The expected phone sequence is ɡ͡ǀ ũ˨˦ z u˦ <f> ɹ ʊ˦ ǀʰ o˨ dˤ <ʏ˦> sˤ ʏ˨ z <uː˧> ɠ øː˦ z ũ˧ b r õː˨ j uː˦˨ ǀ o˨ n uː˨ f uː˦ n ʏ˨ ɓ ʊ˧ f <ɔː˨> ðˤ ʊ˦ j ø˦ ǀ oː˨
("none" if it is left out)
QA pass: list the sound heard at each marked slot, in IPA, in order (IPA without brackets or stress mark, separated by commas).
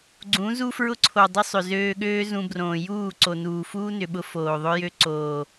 f, ʏ˦, øː˧, oː˨